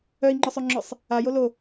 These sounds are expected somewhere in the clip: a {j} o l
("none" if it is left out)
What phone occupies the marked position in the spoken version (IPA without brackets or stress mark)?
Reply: j